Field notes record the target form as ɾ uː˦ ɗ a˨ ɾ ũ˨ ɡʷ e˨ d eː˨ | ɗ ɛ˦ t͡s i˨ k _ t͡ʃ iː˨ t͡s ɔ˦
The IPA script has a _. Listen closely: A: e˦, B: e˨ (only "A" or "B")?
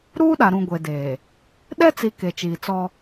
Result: B